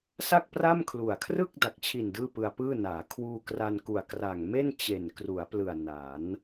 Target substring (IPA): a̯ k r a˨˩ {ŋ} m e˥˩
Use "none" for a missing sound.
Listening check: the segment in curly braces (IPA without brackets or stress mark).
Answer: ŋ